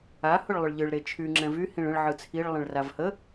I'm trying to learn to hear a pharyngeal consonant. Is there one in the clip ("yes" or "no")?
yes